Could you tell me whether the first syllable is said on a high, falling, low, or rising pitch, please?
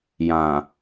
low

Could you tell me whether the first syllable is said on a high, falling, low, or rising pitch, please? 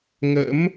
rising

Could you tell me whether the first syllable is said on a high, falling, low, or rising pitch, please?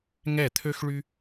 falling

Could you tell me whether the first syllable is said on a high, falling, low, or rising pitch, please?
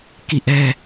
falling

